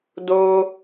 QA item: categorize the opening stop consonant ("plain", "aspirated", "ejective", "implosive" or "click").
plain